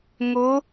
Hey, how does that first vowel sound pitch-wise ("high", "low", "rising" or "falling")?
rising